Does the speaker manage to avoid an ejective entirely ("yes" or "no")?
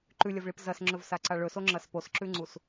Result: yes